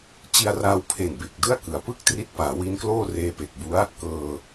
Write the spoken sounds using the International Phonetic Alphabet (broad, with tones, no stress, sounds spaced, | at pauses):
t͡ɕ i˧ a̯ r aː˧ w pʰ e˨˩ n b e˨˩ k̚ d ɯ˥˩ a̯ k ɯ˩˦ a̯ p ɯ˥˩ k̚ t r i˦˥ t̚ p aː˩˦ w i˦˥ n k l oː˥˩ r eː˧ p e˨˩ k̚ b u˦˥ a̯ | k ɤː˧